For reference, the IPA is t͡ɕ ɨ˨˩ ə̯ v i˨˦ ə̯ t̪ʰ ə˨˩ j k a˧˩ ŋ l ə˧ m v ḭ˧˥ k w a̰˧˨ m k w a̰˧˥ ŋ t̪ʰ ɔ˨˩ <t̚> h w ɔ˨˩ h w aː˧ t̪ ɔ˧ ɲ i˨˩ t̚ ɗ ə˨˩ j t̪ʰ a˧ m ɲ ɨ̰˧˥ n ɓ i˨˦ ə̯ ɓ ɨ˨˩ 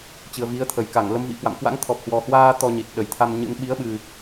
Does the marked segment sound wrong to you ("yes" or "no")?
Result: yes